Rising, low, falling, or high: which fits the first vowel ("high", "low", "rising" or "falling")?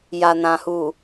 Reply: low